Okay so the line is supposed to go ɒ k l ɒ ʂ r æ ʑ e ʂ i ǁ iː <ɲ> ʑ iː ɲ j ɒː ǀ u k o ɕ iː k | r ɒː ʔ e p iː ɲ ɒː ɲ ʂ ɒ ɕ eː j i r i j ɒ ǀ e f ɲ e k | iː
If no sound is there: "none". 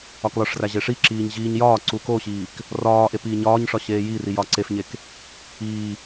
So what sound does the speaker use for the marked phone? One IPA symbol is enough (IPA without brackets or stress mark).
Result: ɲ